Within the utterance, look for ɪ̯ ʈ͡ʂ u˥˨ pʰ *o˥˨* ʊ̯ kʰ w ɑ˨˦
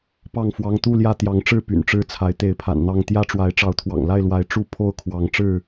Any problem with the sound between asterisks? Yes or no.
no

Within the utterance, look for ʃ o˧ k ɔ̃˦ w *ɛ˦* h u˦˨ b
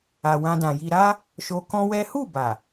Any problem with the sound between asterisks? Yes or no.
no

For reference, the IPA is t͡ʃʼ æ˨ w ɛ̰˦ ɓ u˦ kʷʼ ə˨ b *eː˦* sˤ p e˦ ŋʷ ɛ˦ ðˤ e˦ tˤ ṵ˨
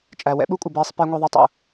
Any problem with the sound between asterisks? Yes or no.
no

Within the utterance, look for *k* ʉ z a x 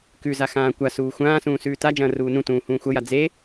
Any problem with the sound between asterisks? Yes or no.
no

